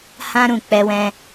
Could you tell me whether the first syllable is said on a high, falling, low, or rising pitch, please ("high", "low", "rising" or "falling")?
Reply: high